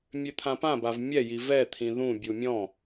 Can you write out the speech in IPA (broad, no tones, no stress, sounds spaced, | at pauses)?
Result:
mʲ ø t̪ʰ ã p ã b a v mʲ ɛ j i v ɛ t̪ʰ ĩ ð ũ bʲ u mʲ ɔ̃